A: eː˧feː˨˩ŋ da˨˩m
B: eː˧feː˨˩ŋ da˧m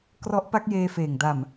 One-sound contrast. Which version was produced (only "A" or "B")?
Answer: A